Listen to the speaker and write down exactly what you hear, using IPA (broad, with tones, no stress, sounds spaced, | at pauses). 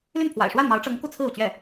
l y˥˩ n pʰ w a̰˨˩ ɪ̯ ʂ w a˥˩ n m ɑ˧˥ ʊ̯ ʈ͡ʂ ɤ˧˥ ŋ k u˥˧ t͡sʰ ɹ̩˥˩ u˩ t͡ɕ ɥ ɛ˥˩